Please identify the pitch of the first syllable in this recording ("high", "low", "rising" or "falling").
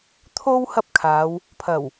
high